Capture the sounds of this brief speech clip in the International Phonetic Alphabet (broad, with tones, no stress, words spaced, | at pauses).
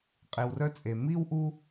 qʼe˨wrœ˥t͡sʼe˩ mi˥wʔu˦